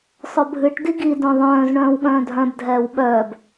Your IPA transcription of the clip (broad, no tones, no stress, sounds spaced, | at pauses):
sˤ œ bʱ ɨ ʈ d i ɡ i d œ̃ ðˤ œ̃ː z ɳ œ̃ː w ɠ œ̃ː dʱ œ̃ b dʱ ɛː w ɓ œː b